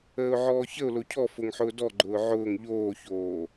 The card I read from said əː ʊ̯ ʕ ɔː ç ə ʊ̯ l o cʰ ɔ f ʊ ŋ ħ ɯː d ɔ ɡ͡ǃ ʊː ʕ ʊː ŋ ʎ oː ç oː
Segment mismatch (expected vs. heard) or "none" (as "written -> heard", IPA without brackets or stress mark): ɯː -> ʊː